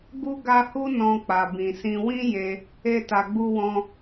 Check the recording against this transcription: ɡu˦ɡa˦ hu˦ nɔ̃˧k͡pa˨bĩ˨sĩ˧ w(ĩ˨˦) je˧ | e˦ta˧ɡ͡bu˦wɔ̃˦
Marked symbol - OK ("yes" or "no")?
no